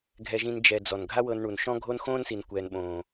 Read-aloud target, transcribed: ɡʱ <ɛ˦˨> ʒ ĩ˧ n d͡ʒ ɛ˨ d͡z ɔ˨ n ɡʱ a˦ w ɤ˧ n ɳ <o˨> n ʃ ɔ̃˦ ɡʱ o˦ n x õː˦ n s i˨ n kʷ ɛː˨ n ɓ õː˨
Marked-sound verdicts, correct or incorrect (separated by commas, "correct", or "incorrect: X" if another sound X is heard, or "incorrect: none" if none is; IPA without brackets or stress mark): incorrect: ɛ˧, incorrect: u˨